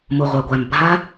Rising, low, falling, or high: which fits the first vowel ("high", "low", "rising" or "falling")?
low